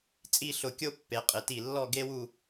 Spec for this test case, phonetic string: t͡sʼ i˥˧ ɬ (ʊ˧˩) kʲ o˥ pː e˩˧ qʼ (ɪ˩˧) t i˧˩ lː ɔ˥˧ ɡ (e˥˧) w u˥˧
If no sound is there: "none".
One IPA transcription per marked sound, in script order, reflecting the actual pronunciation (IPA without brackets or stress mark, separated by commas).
ʊ˧˩, ɪ˩˧, e˥